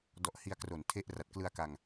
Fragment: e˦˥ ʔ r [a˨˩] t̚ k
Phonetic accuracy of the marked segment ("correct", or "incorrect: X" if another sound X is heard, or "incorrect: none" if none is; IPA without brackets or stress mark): correct